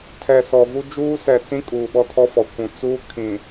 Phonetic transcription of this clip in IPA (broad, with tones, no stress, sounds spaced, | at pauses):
tʰ ɛ˨ s ɔ˨ v u˦ d͡ʒ uː˦ s ɛ˨ t͡s ĩ˦ kʼ uː˨ ɓ ɔ˦ tʰ ɔ˦ f ɔ˨ kʷ ũ˨ t͡s uː˦ kʰ ĩ˨